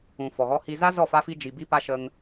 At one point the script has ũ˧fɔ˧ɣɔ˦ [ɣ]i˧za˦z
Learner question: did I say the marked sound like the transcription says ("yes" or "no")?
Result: no